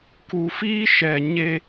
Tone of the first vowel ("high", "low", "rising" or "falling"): low